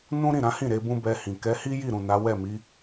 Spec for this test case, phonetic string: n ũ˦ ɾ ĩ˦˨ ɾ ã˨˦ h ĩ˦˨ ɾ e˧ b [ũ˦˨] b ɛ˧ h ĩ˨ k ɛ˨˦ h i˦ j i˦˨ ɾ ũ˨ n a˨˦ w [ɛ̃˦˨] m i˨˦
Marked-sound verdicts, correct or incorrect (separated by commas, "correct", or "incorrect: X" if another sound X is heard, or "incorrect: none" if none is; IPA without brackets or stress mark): incorrect: ũ˦, incorrect: ɛ˦˨